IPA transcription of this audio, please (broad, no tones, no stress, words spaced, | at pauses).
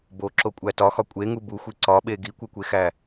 boǁokʷʼæ tɒxɒ kʷʼeŋu buxʷi ǀɒɓe ɡikʷekʷexæ